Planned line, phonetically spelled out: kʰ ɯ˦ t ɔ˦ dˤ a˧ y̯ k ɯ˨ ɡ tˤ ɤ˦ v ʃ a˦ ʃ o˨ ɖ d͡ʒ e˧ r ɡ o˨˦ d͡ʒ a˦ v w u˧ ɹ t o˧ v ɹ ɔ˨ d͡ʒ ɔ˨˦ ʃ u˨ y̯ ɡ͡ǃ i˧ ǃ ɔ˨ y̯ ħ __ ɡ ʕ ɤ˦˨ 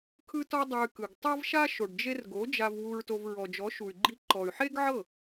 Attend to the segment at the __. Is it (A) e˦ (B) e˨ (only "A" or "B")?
A